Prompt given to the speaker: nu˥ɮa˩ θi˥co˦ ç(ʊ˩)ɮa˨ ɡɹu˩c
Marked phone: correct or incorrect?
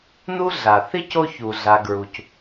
incorrect